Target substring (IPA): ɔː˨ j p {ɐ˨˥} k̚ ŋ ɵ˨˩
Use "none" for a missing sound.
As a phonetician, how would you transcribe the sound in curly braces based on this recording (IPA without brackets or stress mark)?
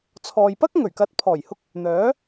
ɐ˥